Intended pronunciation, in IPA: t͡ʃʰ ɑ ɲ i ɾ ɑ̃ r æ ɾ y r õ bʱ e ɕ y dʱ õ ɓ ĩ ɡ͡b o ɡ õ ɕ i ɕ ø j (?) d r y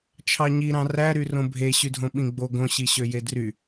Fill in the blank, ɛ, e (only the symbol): e